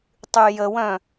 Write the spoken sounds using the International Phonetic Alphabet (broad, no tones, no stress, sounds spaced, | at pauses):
tˤ y j ə w œ̃